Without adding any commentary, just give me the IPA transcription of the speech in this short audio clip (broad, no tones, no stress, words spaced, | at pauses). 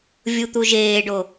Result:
vʲut̪uʒeːɖo